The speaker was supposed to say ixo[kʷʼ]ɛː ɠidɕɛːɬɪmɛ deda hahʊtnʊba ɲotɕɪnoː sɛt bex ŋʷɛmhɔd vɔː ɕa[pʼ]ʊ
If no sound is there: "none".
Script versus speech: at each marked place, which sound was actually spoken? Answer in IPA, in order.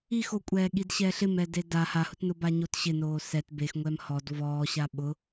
kʷʼ, ɓ

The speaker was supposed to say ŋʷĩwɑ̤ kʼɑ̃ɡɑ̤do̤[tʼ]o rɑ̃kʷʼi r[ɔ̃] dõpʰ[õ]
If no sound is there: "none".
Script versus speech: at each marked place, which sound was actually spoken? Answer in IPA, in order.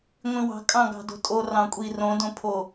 tʼ, õ, o

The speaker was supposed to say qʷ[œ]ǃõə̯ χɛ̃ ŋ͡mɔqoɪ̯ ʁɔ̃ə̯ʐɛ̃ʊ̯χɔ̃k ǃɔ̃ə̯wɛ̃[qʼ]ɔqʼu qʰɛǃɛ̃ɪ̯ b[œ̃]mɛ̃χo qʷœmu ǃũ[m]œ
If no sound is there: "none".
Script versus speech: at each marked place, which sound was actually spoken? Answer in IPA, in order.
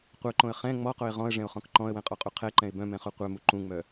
œ, qʼ, œ̃, ŋ͡m

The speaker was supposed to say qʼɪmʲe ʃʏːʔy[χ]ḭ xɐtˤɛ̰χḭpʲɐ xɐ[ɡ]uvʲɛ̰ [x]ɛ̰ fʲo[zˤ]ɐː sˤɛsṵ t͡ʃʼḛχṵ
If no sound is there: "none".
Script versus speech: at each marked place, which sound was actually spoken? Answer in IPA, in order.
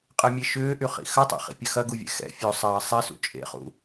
χ, ɡ, x, sˤ

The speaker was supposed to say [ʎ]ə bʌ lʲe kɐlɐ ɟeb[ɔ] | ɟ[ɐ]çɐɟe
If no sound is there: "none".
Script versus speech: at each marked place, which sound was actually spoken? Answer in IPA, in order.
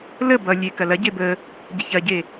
l, ə, ə

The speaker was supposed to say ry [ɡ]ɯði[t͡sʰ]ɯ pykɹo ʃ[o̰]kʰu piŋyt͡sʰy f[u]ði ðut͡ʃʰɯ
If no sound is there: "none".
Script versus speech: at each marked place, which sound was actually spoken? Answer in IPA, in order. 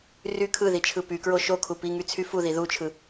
kʰ, t͡ʃʰ, o, u

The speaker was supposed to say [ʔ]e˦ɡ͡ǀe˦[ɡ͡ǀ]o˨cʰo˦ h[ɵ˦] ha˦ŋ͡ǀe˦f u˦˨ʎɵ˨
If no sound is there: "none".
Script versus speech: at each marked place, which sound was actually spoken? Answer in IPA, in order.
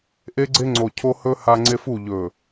ʔ, ŋ͡ǀ, ɵ˦

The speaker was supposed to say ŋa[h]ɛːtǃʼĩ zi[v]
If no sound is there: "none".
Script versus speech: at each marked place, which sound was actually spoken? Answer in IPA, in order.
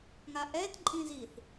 ʔ, θ

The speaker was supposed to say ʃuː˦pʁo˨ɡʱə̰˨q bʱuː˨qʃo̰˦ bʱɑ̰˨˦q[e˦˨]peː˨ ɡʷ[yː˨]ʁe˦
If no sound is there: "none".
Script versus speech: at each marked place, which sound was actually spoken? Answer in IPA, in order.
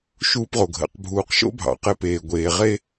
e˦, eː˨

